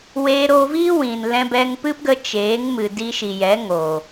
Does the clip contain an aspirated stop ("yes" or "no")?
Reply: no